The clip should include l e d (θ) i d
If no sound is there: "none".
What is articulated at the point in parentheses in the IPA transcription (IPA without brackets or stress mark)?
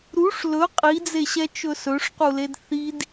θ